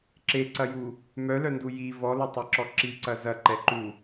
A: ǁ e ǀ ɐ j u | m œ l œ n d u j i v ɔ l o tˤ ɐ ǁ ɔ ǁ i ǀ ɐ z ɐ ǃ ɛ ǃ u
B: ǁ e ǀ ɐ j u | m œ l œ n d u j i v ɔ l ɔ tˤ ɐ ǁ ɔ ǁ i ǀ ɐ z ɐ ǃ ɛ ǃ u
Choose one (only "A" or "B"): A